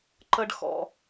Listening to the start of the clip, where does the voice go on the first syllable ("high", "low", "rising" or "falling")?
high